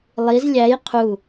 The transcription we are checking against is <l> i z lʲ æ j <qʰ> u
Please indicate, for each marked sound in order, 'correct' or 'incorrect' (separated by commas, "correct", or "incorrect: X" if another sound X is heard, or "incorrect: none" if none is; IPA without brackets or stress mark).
incorrect: lˠ, correct